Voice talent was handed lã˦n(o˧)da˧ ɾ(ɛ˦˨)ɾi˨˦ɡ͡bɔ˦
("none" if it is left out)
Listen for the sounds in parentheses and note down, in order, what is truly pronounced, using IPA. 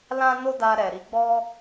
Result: o˦, ɛ˨

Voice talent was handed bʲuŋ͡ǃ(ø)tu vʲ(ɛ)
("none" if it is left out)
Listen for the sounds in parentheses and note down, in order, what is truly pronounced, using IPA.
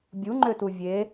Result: ø, e

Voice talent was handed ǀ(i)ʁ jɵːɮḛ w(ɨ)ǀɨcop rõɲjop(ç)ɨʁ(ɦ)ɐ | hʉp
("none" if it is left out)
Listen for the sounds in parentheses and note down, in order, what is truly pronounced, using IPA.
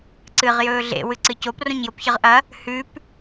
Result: ɨ, ɨ, ç, ʔ

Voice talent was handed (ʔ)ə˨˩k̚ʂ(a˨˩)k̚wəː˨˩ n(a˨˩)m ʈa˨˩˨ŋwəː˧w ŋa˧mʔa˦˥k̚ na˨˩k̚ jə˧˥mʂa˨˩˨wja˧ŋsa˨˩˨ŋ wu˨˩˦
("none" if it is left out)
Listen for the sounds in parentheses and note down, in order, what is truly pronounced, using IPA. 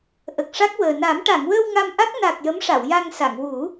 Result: ʔ, a˦˥, a˨˩˦

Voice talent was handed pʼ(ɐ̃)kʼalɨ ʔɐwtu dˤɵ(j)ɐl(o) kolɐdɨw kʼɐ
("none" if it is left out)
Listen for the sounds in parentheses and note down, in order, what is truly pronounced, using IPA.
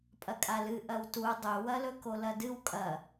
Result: ɐ, w, ɵ

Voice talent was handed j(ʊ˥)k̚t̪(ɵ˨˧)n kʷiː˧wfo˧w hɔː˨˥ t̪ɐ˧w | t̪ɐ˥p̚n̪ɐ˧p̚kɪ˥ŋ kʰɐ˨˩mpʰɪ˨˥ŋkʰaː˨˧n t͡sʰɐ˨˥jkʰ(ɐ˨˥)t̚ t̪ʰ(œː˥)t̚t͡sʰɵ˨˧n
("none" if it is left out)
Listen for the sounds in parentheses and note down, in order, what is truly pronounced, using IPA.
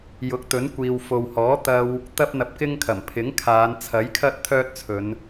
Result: ʊ˨˥, ɵ˨˥, ɐ˥, œː˥

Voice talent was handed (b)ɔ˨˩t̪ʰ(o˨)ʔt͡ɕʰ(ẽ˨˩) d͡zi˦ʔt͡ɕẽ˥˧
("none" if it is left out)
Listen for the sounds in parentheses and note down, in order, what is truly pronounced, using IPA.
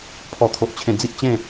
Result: pʰ, o˨, ẽ˨˩

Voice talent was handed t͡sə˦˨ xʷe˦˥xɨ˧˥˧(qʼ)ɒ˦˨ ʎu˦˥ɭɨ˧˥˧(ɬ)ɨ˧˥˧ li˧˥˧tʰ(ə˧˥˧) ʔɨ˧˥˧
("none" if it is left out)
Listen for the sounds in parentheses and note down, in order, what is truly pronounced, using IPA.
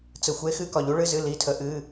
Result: k, z, ə˦˥

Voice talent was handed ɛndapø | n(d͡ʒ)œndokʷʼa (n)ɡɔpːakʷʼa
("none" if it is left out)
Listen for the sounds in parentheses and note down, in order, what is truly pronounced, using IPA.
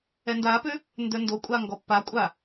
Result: d, ŋ

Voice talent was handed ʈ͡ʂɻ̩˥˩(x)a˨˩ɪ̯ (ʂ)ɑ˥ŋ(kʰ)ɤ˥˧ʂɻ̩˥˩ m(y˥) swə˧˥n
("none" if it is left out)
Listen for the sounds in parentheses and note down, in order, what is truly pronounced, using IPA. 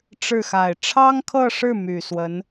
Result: x, ʈ͡ʂʰ, kʰ, y˨˩

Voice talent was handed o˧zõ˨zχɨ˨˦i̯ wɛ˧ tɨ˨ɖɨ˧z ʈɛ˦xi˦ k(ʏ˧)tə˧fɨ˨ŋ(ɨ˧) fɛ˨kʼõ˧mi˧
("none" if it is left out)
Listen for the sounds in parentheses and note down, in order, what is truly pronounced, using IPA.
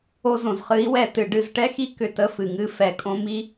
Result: ʏ˧, ɨ˧

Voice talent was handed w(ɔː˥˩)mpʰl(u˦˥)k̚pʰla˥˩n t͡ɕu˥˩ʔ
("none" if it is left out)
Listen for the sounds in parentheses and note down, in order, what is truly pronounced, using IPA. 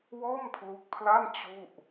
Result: ɔː˥˩, u˦˥

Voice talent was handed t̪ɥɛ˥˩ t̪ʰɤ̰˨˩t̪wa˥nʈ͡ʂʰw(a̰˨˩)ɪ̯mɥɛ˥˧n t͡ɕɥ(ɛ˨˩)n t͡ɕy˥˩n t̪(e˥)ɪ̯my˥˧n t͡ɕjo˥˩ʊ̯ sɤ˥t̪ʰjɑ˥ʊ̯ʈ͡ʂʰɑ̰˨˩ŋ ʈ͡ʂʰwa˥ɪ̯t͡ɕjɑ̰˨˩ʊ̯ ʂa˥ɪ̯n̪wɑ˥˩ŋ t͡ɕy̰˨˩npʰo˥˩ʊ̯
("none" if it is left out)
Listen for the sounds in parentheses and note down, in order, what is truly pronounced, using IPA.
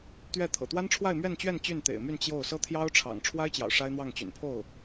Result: a˥˧, ɛ˥˧, ḛ˨˩

